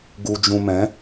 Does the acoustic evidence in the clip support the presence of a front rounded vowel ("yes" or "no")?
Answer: no